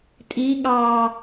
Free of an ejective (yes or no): no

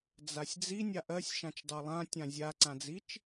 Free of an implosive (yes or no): yes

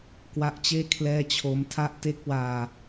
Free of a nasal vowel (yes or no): yes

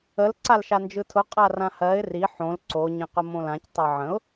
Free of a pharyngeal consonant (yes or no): no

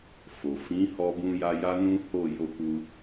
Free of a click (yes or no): yes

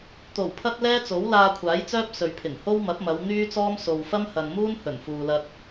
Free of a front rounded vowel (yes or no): no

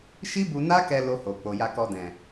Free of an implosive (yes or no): yes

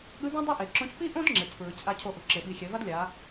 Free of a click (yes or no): no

